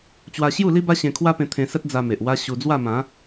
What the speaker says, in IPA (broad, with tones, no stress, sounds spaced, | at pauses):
t͡ɕ w a˧ ɕ j u˥˧ l i˦ b a˦ ɕ ẽ˧ kʰ w a˦ p ẽ˧ t̪ʰ ẽ˧ s ə˦ t̚ d͡z a˧ m e˨ ʔ w a˦ ɕ u˧ d͡z w a˥˧ m ã˨˦